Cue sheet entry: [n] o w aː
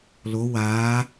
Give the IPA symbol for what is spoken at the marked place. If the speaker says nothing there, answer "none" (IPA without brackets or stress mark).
l